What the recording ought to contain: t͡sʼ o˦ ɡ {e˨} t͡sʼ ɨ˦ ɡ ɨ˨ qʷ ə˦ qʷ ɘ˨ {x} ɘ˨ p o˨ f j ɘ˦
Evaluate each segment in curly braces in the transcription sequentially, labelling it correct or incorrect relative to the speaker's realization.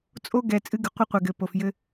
incorrect: ɛ˨, incorrect: ɡ

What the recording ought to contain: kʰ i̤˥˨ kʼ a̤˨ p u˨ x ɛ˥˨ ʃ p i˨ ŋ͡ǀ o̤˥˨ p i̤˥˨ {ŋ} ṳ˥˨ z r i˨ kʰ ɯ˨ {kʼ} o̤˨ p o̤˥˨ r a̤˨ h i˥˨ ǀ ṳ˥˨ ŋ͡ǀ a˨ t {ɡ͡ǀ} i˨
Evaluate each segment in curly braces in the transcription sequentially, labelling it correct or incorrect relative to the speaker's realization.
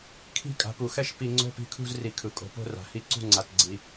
incorrect: kʰ, correct, correct

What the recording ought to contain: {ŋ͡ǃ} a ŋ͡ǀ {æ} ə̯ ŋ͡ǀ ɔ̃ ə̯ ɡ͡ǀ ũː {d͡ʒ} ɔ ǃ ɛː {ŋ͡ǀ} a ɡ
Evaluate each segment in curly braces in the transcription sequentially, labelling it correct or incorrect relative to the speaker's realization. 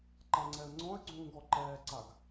incorrect: ǃ, incorrect: ɛ, incorrect: ɡ, incorrect: ǀ

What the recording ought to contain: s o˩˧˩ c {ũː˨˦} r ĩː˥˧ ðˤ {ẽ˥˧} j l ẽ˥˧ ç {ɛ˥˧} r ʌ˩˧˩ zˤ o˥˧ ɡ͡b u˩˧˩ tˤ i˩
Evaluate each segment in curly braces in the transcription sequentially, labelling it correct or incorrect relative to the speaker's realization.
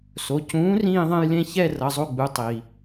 correct, correct, correct

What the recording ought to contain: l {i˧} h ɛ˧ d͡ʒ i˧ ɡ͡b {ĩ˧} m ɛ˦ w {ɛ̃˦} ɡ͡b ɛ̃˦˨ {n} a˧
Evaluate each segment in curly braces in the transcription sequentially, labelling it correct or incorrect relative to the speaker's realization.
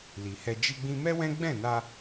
incorrect: i˨, correct, correct, correct

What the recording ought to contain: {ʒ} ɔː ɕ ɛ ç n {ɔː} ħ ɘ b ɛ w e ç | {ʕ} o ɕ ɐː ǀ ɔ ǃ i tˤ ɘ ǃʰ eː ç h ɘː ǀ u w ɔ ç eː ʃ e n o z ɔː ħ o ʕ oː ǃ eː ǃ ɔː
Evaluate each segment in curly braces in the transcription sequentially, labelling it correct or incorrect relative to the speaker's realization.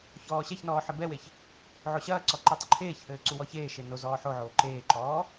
incorrect: ç, correct, correct

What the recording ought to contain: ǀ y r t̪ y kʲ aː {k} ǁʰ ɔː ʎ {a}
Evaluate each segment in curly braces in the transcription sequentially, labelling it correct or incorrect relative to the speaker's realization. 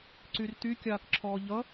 correct, incorrect: ʌ

